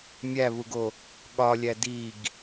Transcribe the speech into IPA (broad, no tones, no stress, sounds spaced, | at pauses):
mʲ æ β u ɡ o | ɠ ɒ lʲ æ d i ɡ